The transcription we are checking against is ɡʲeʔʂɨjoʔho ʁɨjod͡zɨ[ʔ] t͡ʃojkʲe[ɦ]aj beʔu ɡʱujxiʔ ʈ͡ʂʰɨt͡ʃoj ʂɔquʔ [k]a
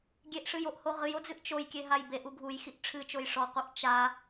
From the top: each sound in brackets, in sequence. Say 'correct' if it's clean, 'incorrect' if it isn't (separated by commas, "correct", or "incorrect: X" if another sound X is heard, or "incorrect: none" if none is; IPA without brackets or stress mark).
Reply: correct, correct, incorrect: t͡ʃ